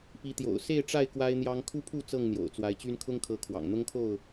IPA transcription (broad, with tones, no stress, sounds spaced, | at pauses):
p i˨˦ t̪ j o̰˨˩ ʊ̯ s e˥˨ ɪ̯ ʈ͡ʂ a˥˨ ɪ̯ k w a˦ ɪ̯ n̪ j ɑ˦ ŋ kʰ u˦ pʰ u˥˨ t͡s ɤ˥˨ ŋ n̪ j o̰˨˩ ʊ̯ t͡s w a˨˦ ɪ̯ t͡ɕ y˦ n kʰ ʊ˦ ŋ kʰ ɤ˨˦ kʰ w ɑ̰˨˩ ŋ n̪ ʊ˦ ŋ kʰ o˥˨ ʊ̯